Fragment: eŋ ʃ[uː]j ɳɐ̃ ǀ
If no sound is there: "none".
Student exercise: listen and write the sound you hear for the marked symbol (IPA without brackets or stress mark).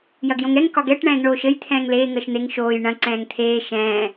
oː